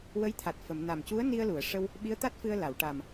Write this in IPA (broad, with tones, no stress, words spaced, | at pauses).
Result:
wə˧˥jt̪ʰa˨˩t̚ fə˨˩˨mna˨˩m cu˧˥ə̯ ni˧ə̯lu˨˩˨ə̯ʂə˧w | ɓi˧˥ə̯t̪a˦˥t̚fɨ˧ə̯ la˨˩˨wʈa˨˩m